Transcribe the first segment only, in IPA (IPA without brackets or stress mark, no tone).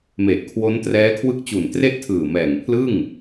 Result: m